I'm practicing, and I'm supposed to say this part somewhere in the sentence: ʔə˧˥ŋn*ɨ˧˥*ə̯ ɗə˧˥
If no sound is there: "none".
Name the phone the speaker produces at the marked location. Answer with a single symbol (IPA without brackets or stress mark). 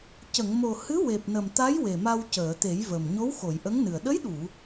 ɨ˨˩